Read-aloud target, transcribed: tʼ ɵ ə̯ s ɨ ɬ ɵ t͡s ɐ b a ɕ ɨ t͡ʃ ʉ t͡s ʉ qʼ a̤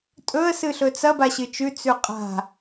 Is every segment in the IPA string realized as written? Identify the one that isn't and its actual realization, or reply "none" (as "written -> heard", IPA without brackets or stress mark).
none